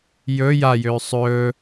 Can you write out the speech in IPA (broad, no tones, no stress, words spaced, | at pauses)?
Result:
jɵ jajøː sˤɵː